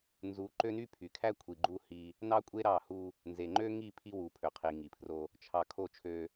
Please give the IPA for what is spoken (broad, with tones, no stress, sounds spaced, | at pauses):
n z u˨˦ ǃ ø˦ n y˦ pʰ y˨ kʰ æ˦ kʷʰ i˨ ɡ͡ǃ u˦ h i˦ | n ɑ˦ kʷʼ e˦ ɾ ɑ˦˨ h u˦ | n z e˨ ŋ͡ǃ ø˦ ŋ i˦˨ pʰ i˦ w u˨ pʰ ø˨ qʰ i˨ ŋ i˨ pʰ r o˦ | t͡ʃʰ ɑ˨ kʰ o˦˨ t͡ʃʰ ø˦